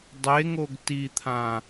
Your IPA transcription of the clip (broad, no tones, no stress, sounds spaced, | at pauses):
dˤ e ŋ o ɡ t i t̪ʰ ã